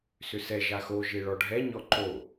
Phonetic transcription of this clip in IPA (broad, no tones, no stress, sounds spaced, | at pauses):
s ʏ s ɛ ʒ a x o ʒ e ɭ ɔ ɖʱ ɛ ɲ ɔ ǃ o